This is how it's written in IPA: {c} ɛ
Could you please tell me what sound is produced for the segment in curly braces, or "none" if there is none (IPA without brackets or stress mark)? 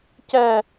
c